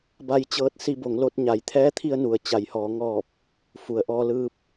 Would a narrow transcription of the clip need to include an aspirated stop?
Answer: yes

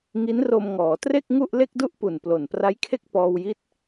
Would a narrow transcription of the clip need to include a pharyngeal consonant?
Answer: no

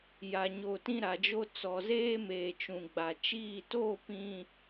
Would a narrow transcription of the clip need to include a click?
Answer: no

